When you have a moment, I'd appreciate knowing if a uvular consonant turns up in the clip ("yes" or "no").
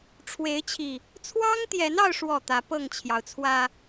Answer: no